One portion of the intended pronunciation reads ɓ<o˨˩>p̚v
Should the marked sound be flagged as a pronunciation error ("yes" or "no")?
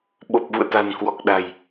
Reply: no